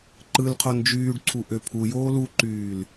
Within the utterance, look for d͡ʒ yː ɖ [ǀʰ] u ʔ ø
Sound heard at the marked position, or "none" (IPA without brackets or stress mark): ǀʰ